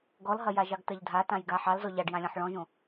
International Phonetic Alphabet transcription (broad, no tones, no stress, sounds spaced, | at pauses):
ɡ ɔ l ɦ ɐ j a ʒ ɑ ɡ t ɐ ʎ dʱ a t ã j ɡ a ħ ɑ l z ɔ ʎ ɑ ɖ j ã lʲ ɔ̃ ħ ɭ ɔ̃ ʒ õ